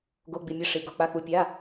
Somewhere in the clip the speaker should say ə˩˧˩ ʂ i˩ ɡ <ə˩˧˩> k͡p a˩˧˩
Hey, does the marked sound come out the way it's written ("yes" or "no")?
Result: no